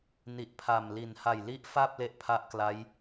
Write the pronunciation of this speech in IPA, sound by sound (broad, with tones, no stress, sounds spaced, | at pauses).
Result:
n i˨˩ ʔ pʰ a˨˩ m l i˨˩ n h a˨˩ j l i˦˥ ʔ f a˥˩ p̚ l e˥˩ ʔ pʰ a˦˥ ʔ k l a˦˥ j